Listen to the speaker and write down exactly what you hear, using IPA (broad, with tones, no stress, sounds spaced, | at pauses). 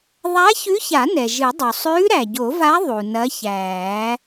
ðˤ a˧˥ ç ʉ˧˥ ç a˨˩˦ n ɛ˩ ʒ ɨ˨˩˦ dˤ o˩ sˤ ʉː˧˥ ɾ æ˩ ɟ o˨˩˦ v a˧˥ ðˤ u˩ n ɐ˧˥ ç æː˨˩˦